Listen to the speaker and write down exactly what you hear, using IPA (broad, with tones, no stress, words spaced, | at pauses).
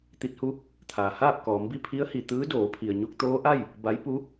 t̪i˧˥t̚hu˧˥ | t̪ʰaː˩ haː˥˨p̚kɔː˩˧mbi˥˨ pʰi˧˥ə̯hi˩ t̪ɯː˧˥doː˩˧pʰi˩ə̯ ɲu˧k̚t̪oː˧˥ ʔa˥˨j | ba˧˥j pu˧˥